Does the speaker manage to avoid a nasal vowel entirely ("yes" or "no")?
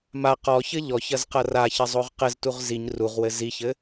yes